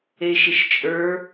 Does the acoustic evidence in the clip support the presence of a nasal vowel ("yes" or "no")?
no